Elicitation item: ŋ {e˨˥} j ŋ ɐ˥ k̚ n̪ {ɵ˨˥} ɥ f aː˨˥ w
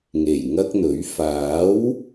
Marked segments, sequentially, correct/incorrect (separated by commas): incorrect, correct